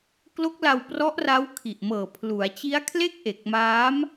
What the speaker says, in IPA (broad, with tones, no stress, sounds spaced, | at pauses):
k l o˦˥ k̚ l a˧ w p r ɔ˦˥ ʔ r a˦˥ w kʰ i˨˩ ʔ m ɤː˨˩ pʰ l u˩˦ a̯ t͡ɕ i˦˥ a̯ kʰ l e˥˩ k̚ ʔ e˨˩ k̚ m aː˦˥ m